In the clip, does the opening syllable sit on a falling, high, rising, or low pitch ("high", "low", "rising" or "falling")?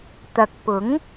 low